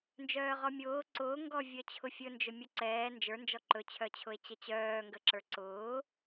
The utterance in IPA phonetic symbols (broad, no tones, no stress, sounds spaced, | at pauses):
n d͡ʒ œː ʁ ɔ mʲ ʊː ǀ ʊː ŋ ɡ ɔ vʲ œ t͡ɕʰ ʊ fʲ ɵ n d͡ʒ ɵ mʲ ʊ ǀ ɛː n d͡ʒ ə˞ n d͡ʒ ɔ ǃ ɵ t͡ɕʰ œ t͡ɕʰ ʊ e̯ t͡ɕ ə t͡ɕ œː ŋ ɡ ə ǁ ə˞ ǀ ʊː